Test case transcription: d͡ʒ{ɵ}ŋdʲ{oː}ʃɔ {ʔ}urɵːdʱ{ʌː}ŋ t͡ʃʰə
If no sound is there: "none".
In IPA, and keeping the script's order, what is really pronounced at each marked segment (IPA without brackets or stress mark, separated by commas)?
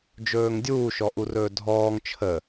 ɵː, uː, ʔ, ɔː